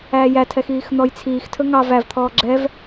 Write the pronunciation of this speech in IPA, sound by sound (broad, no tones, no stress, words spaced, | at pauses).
æːjætʰɛx iːxn̪ɔjt͡sʰiːxtʰɵ ŋɑ vævt̪ʰɔː ɡ͡ǁɛv